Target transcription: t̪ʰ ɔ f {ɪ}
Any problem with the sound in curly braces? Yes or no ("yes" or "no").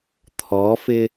no